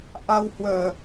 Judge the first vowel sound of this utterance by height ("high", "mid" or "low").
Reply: low